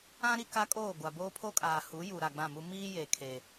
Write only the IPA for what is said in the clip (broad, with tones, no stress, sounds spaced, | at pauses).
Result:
ã˦ ɾ i˦ k a˦ kʼ oː˦˨ ɡʷ a˨ b oː˦ pʰ o˦ kʼ aː˨ h u˨˦ j u˨ ɾ a˨ ɡ͡b ã˦˨ m u˦ m iː˦ j e˨ kʰ e˨